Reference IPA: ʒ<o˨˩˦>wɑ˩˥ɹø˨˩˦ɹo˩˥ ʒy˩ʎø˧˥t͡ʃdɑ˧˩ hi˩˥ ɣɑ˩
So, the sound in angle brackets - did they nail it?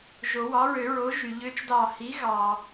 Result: yes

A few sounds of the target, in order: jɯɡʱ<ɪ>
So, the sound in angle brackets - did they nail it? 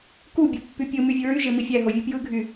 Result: no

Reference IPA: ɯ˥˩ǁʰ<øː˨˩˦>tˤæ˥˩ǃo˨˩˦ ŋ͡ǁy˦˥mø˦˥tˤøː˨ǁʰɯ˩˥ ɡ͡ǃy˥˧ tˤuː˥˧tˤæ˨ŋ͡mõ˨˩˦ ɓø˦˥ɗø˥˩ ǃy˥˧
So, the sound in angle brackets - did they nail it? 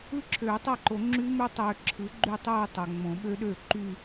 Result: yes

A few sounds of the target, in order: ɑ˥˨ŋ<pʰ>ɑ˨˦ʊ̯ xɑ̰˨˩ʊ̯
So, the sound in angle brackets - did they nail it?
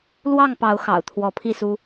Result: no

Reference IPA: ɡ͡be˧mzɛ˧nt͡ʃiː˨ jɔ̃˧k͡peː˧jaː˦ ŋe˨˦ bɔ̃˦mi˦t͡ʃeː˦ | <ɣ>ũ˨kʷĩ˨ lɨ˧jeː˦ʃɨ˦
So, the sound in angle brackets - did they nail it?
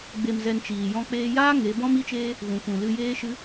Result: yes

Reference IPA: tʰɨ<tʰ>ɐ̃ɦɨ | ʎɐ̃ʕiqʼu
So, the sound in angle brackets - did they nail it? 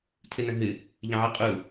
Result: no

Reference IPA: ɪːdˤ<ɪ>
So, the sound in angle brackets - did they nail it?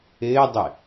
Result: yes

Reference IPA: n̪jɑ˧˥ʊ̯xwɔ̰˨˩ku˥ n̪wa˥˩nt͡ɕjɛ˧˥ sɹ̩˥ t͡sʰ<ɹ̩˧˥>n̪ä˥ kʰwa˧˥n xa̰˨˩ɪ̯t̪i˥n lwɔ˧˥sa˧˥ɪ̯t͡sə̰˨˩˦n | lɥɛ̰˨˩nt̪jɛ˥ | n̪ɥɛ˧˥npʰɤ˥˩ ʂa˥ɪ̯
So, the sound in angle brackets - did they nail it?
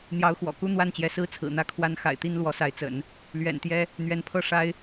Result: no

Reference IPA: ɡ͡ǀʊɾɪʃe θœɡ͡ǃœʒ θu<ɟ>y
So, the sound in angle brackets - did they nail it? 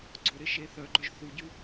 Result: yes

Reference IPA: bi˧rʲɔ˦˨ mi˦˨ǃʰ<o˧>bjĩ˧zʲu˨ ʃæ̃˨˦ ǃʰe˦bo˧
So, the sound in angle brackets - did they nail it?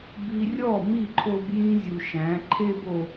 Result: yes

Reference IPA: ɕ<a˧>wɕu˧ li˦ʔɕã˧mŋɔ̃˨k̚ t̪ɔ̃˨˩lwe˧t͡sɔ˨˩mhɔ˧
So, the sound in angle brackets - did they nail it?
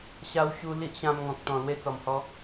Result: yes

